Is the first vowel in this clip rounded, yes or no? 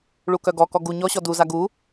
yes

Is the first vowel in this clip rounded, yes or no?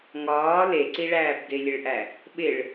yes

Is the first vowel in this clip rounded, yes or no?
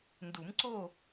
yes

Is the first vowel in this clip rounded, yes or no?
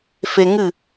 no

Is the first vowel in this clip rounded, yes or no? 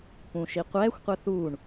yes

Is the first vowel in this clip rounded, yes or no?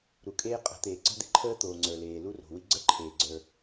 yes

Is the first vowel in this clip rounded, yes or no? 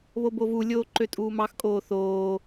yes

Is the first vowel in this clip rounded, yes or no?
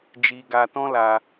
no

